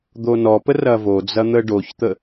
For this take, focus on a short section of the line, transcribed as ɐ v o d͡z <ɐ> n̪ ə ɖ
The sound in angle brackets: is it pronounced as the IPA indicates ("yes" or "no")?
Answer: yes